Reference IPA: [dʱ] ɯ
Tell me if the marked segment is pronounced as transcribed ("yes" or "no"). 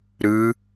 no